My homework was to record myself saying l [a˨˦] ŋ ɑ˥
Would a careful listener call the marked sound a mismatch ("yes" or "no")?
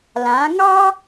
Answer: yes